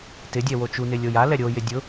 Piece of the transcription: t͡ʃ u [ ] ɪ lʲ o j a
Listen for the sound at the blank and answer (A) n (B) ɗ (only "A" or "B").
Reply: A